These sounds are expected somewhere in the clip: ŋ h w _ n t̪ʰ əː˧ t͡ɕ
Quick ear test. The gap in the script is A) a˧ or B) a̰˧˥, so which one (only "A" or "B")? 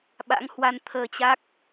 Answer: A